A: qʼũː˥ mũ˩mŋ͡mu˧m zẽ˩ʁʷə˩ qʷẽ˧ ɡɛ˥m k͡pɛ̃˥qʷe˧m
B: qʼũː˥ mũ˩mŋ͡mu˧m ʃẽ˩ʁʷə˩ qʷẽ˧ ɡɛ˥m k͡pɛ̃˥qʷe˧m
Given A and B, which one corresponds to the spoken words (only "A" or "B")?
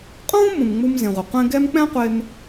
A